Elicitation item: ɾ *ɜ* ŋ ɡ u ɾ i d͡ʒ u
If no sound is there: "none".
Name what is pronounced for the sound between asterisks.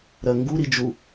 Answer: ɜ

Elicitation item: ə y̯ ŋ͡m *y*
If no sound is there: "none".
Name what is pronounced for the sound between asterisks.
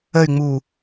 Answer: u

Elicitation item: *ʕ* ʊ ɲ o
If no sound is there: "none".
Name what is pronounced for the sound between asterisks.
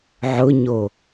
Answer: ʕ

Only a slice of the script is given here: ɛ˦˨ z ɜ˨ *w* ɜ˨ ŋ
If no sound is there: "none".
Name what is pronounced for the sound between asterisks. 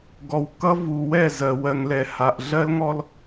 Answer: w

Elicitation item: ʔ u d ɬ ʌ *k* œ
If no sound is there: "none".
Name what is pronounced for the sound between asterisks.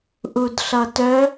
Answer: t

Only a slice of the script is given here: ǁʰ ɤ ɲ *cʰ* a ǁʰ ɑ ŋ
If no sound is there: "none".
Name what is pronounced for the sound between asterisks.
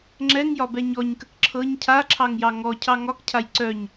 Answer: cʰ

